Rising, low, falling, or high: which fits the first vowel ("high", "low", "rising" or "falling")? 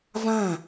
falling